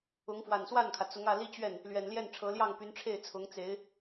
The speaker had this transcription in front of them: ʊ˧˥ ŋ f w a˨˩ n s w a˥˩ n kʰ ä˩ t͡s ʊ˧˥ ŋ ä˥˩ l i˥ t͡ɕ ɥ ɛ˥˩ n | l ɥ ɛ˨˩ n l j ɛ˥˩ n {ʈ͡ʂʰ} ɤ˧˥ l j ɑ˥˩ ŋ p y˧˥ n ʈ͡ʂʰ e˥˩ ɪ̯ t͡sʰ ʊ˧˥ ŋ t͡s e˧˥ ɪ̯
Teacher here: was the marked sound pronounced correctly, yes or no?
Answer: yes